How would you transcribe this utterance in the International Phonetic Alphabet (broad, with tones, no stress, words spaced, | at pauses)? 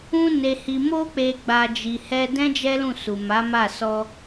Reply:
ũ˧ne˨hi˨ mo˧k͡pe˨ɡ͡ba˨ d͡ʒi˨hɛ˧dɛ̃˦ d͡ʒɛ˦lũ˦˨su˨ ma˨˦ma˦˨ sɔ˧